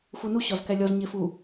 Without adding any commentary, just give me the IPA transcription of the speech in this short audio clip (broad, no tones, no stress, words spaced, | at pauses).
funu ɕɒzkælʲɒz ɲefu